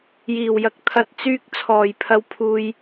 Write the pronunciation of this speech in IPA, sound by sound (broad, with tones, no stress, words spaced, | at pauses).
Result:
jiː˨˩wjɐ˨˥k̚t̪ʰɐ˧t̚ t͡syː˥k̚ t͡sʰɔː˨˩jpʰɐ˧wpʰuː˧j